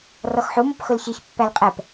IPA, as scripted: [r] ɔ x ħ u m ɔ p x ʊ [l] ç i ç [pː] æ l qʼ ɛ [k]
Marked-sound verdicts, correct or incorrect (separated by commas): correct, correct, correct, incorrect